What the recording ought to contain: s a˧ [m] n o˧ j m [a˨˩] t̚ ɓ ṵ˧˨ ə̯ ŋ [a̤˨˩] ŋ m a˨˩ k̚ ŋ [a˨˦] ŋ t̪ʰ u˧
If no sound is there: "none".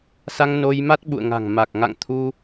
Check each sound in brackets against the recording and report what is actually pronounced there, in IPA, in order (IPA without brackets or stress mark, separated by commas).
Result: ŋ, a˦˥, a̤˨˩, a̰˧˨